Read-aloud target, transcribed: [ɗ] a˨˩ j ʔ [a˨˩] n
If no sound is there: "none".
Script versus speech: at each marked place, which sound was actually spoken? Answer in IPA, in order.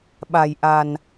ɓ, a˨˩

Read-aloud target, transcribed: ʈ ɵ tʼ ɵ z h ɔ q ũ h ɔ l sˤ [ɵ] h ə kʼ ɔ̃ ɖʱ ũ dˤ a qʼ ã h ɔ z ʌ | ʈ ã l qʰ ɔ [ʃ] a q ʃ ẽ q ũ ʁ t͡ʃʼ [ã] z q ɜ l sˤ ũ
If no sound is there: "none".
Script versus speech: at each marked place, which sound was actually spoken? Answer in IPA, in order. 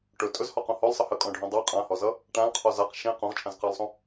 ə, z, ã

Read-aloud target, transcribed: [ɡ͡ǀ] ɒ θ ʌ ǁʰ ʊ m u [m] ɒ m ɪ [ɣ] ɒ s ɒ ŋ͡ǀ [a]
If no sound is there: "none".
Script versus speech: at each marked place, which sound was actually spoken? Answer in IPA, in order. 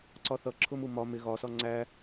ǀ, m, ɣ, æ

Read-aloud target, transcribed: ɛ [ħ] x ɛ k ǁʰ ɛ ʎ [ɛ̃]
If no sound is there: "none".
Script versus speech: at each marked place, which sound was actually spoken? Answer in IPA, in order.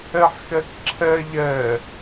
ħ, ɛ

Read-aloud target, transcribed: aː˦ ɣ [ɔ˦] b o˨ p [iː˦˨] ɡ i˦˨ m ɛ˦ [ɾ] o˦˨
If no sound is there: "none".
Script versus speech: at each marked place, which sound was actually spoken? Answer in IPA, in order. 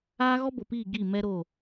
ɔ˦, iː˦˨, ɾ

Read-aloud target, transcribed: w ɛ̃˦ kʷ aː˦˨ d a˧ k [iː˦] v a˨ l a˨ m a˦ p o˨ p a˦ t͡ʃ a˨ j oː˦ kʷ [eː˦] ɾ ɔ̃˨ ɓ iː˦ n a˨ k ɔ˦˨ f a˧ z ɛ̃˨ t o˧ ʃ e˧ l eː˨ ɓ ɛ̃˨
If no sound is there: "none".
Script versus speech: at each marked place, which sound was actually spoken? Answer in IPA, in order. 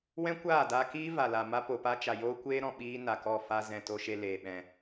iː˦, eː˦

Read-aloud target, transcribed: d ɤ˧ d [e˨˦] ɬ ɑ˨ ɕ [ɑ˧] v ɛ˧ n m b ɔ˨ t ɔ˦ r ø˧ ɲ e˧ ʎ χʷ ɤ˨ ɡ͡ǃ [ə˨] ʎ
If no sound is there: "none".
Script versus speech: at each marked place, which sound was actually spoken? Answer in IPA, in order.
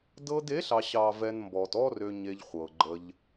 e˨˦, ɑ˨, ə˧

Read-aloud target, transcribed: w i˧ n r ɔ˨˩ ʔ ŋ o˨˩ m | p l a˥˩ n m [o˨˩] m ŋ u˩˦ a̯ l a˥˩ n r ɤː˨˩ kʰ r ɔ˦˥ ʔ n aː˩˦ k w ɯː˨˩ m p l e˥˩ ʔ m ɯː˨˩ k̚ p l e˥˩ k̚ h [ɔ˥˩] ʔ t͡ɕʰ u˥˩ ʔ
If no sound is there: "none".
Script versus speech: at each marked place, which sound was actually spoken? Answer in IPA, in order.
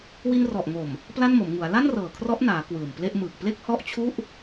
o˩˦, ɔ˥˩

